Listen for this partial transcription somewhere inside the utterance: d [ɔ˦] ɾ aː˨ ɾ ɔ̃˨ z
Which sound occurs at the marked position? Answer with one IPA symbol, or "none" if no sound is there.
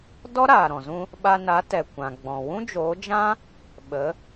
ɔ˦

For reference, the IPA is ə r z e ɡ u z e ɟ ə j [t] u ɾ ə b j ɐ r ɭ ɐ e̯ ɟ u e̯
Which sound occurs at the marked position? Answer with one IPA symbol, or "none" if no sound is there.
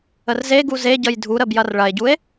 dʱ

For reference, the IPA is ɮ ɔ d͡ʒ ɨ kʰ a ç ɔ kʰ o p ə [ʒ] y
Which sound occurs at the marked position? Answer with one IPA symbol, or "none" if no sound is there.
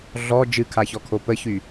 ç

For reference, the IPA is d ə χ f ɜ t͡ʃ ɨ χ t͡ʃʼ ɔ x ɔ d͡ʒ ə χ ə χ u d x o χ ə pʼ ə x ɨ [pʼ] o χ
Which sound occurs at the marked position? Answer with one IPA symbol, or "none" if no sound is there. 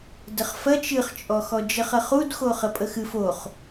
f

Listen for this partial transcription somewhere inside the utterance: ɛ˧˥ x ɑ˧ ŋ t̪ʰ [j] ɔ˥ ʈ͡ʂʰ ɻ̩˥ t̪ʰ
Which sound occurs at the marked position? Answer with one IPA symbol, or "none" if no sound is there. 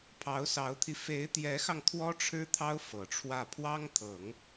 w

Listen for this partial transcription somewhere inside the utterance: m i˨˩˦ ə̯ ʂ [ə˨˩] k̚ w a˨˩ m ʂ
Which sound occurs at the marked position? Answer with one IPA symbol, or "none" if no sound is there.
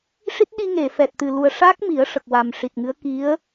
ə˨˩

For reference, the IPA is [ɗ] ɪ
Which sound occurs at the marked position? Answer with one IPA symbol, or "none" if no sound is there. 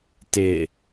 t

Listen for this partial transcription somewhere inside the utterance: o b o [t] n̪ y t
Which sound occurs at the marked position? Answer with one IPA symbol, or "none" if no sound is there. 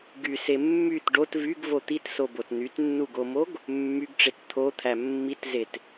t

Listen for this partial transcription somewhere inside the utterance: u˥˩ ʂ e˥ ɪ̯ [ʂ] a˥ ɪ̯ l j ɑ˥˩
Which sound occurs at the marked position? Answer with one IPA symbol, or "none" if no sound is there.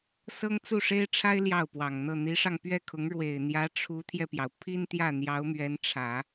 ʈ͡ʂʰ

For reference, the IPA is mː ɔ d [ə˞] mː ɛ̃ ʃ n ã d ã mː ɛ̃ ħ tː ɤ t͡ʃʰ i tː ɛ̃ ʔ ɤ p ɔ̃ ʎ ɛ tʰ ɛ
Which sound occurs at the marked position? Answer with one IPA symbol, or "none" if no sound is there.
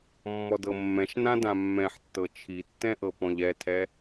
ɤ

